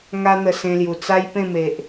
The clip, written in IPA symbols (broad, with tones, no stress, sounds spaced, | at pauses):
ŋ a˦ n̪ ə˧ s ẽ˧ l j u˨˩ t͡s a˦ j p ẽ˥˧ m e˨ ʔ